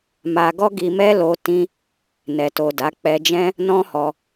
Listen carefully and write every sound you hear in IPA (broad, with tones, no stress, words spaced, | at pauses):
ma˧ɡɔ˦ɡi˧mɛ˦ lo˧ tĩ˧ | nɛ˨to˨ da˨˦k͡pɛ˧d͡ʒɛ̃˦ | nɔ̃˦hɔ˧